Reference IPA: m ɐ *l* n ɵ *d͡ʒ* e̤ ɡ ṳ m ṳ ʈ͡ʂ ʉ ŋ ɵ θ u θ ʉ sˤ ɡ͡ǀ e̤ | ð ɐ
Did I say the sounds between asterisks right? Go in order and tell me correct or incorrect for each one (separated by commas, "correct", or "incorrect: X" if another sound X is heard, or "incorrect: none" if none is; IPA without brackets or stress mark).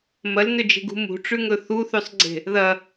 correct, correct